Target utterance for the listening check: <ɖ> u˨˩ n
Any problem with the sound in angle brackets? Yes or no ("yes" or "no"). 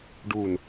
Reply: no